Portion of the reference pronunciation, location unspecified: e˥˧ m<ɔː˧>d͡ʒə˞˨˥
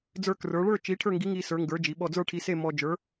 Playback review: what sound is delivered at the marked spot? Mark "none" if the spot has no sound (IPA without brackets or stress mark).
ɔ˧